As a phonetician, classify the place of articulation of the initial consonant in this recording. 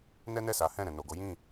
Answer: alveolar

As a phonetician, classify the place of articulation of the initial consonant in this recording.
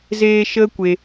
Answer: alveolar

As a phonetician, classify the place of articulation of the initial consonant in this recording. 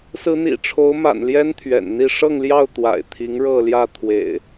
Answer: alveolar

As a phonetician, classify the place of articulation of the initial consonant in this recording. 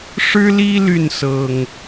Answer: retroflex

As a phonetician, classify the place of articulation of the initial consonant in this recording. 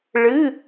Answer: retroflex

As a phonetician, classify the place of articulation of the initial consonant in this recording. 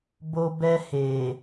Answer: labial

